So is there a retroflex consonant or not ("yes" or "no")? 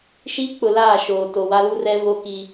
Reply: no